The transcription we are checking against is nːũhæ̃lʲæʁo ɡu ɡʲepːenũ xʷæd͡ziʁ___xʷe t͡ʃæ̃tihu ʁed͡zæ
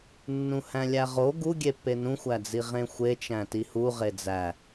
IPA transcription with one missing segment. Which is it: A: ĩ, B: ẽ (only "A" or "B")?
B